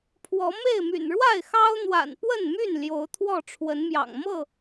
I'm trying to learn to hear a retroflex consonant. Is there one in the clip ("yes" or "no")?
yes